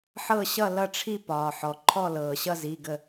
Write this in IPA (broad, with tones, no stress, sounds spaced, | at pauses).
ħ ɤ˥˧ ɕ ʌ˥˧ l ʌ˥˧ ʈ͡ʂʰ i˥˧ p ɒː˩ ħ ɔ˩ ǃʰ ɔ˥˧ l ɤː˩ ɕ ʌ˥˧ z i˩˧˩ ɡ ə˧˩